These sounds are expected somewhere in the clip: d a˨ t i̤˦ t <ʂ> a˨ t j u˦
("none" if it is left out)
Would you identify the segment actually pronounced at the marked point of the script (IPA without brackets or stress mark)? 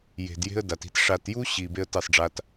ʂ